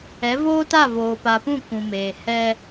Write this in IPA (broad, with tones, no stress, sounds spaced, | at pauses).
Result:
ɛ˨˦ v oː˦ t a˦˨ v oː˨ p a˨ p ũ˦˨ k ũ˨ m eː˨ h ɛ˦